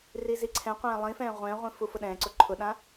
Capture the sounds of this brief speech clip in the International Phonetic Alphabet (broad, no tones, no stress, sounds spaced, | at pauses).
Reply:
r i z i ǀʰ ɛ̃ qʷ ɛ̃ː lˠ ĩ f ɛ̃ː ʁʷ ɛ̃ː ʁʷ ĩ f u f ʊ ɗ ɛ̃ː ǀ ʊ ǃʰ ʊ ɗ ã